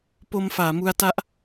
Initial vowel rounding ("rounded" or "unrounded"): rounded